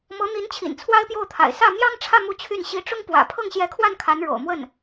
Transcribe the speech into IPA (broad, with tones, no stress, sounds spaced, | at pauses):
m ɤ˧˥ n̪ i˧˥ n t͡ɕʰ ḭ˨˩ n t͡sʰ w a˥ ɪ̯ p j o˥˩ ʊ̯ t̪ʰ a̰˨˩ ɪ̯ s ä˥˩ m j ɑ˥ ŋ ʈ͡ʂʰ ä˥˧ m u˥˧ t͡ɕʰ y˥˩ n ɕ i˧˥ ʈ͡ʂ ʊ˥ ŋ p w ä̰˨˩ pʰ ɤ˥˩ ŋ ɕ j ɛ˧˥ kʰ w a˥˩ n kʰ a˧˥ n ɻ o̰˨˩ ʊ̯ m w ə˥˩ n